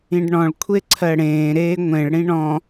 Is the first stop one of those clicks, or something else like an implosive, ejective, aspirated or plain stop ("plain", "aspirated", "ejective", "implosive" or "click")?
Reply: plain